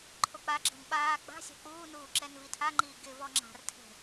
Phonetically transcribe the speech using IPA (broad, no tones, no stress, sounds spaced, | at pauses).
ǃʰ o k͡p a ɡ͡ǁ ɪ n ɓ aː ɡ͡b a̤ sʲ a̤ k͡p uː n uː ǁ ɛ n v i tʰ a ŋ͡ǃ iː ɡ ɪ v ɔ ŋ͡ǁ a̤ r tʰ e̤